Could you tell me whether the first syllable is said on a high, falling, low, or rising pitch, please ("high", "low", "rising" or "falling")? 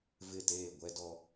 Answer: falling